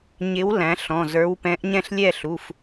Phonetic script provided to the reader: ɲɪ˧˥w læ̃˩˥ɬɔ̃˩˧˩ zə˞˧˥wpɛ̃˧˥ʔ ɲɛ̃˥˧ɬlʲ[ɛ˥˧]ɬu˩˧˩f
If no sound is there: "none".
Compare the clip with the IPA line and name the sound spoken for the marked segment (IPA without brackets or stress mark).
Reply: ɛ˥˧